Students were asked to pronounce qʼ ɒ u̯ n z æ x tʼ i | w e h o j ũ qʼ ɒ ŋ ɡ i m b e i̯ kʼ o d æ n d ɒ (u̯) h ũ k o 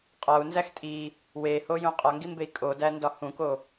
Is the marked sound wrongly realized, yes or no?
yes